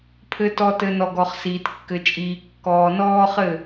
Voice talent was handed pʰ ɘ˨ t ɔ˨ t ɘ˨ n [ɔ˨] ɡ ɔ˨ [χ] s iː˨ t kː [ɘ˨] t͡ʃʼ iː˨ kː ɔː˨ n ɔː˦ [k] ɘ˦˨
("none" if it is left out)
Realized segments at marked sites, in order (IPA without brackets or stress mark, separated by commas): ɔ˨, χ, ɘ˨, χ